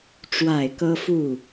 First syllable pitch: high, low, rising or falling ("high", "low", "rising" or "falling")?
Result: falling